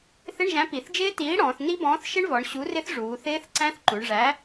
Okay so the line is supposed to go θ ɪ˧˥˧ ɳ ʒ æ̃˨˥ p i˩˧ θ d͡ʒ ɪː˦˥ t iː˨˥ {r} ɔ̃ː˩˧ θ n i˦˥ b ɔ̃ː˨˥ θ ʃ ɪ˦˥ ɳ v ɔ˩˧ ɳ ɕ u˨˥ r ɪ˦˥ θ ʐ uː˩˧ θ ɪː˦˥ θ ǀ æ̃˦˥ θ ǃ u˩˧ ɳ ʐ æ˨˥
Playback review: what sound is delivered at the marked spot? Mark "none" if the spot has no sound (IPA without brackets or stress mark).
ɽ